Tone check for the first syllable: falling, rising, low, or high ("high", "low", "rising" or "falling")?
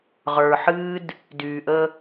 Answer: low